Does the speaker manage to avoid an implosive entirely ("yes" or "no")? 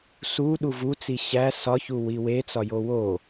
no